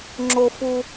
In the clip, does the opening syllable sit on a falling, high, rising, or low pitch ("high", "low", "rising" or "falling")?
high